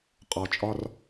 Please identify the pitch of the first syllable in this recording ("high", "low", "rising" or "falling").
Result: low